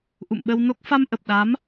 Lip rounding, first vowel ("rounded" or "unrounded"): rounded